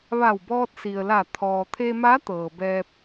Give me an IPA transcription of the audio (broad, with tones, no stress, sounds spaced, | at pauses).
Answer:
ʋ a˧˩ w b ɔː˧ t̚ s i˩ ə̯ l a˧˩ t̪ʰ ɔː˩ t̪ʰ e˧ m a˧˥ t̪ ɤː˩ b ɛː˧ p̚